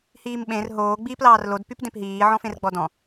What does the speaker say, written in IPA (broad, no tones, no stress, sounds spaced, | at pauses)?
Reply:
h iː m ɓ ẽ r ɦ oː ɡ͡b iː p l ɑː r l o d p y p d ẽ p ɦ iː ʕ ɔ̃ f ẽ r ɡ͡b ɔ d ɔ̃